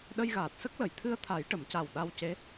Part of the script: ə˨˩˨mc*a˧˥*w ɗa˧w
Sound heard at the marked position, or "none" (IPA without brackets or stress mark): a˨˩